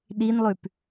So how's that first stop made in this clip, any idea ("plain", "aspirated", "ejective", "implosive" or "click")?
implosive